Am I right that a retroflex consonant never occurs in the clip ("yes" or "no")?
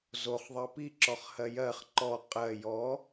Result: yes